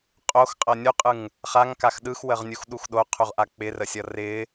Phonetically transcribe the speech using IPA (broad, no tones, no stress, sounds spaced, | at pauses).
qʼ o x qʼ ʌ nʲ u qʼ ɯ ŋ | χ a ŋ k a x ɗ ɯ x w ə ʁ nʲ u x ɗ u x ɗ o qʰ u ʁ ʔ a k͡p ɪ r ə sʲ ʌ r ɪ